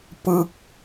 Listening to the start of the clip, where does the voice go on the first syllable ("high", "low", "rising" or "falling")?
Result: falling